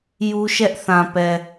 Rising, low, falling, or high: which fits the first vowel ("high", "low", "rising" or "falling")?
high